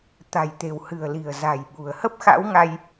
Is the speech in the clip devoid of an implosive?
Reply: no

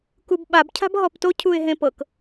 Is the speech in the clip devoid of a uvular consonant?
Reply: yes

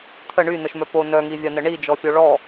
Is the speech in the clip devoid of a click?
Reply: yes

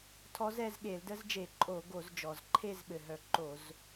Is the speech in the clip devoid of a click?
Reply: no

